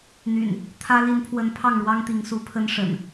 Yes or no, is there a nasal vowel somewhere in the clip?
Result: no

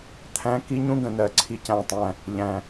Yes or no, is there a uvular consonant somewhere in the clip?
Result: no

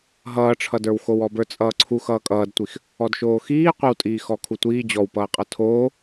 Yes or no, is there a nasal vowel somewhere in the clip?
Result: no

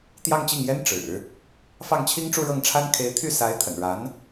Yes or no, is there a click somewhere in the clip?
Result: no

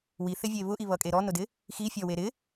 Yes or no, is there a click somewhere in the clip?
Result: no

